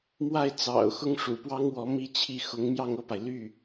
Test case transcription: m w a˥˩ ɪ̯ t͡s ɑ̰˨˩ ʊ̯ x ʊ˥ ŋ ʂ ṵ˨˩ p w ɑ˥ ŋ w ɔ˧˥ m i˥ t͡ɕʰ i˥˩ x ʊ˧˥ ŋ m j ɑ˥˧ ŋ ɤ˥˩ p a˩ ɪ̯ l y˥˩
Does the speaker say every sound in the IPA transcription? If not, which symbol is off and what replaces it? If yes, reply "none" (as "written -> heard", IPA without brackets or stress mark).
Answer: none